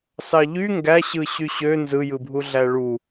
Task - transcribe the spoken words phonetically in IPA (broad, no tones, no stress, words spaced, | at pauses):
sɑʎy ŋɡæɕɯ ɕyɕø nzɯjɯbʱu ɮæɭu